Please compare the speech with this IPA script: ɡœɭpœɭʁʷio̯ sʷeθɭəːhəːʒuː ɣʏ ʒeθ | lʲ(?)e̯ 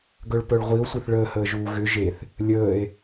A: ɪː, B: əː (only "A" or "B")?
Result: B